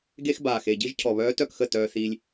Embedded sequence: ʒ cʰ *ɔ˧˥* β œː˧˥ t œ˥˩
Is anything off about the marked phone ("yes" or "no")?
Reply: yes